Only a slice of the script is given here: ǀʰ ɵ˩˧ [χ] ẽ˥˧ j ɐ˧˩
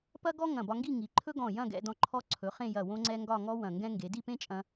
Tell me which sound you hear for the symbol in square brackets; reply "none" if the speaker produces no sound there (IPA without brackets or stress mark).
χ